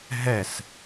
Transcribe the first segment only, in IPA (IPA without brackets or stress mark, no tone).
ɦ